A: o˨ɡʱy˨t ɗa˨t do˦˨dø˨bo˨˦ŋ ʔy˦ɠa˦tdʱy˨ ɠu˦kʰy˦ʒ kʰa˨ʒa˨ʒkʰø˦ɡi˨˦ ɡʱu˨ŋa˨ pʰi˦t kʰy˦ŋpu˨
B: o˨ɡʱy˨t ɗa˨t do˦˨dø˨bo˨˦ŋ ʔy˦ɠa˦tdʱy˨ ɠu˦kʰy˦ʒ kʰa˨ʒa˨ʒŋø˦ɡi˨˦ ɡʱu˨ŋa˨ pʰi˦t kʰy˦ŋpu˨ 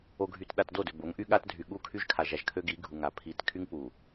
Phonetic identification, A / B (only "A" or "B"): A